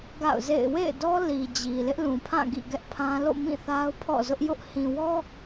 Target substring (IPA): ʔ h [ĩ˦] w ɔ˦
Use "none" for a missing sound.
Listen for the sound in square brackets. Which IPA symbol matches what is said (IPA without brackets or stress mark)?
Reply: ĩ˨